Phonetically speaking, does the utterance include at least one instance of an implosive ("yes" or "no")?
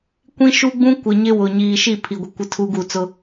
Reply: no